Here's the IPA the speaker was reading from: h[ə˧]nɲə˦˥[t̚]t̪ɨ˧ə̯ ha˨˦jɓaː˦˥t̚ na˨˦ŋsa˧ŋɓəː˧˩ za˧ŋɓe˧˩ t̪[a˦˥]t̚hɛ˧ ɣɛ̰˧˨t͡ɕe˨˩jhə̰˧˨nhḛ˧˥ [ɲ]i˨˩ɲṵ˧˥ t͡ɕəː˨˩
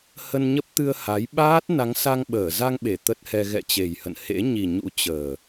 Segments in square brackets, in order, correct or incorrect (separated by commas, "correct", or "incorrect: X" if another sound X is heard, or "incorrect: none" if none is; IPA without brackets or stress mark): correct, incorrect: p̚, incorrect: ə˦˥, correct